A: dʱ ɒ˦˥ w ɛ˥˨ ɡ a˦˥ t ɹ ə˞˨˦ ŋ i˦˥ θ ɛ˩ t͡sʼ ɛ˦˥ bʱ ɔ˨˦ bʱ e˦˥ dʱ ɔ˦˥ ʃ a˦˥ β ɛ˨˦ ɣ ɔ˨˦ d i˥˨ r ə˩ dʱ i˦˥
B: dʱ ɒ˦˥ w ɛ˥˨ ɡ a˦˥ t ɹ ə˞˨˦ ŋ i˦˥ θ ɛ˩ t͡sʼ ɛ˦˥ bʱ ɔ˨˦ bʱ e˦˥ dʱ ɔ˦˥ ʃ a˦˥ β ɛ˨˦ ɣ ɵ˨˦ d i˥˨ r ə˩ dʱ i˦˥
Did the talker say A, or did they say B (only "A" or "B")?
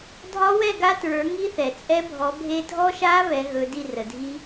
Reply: B